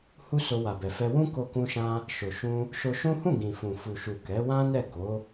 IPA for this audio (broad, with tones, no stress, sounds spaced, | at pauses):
h u˦ s o˧ w a˨ b ɛ˨ f ɛ˧ w ũ˦ k o˦ k ũ˦ ʃ ã˦ | ʃ o˨ ʃ ũ˧ | ʃ o˧ ʃ ũ˦ h ũ˦˨ ɡ ĩ˨ f ũ˨ f u˨ ʃ u˨ k ɛ˨˦ w ã˦ n ɛ˦˨ ɡ o˨˦